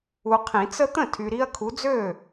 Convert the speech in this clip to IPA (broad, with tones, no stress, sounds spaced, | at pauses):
u˨ qʰ ĩ˨˩˦ t͡s ə˦ t̪ ə̃˥˩ tʰ y˨ ɾ i˦ ɐ̯ kʰ u˨˦ d͡z ø˥˩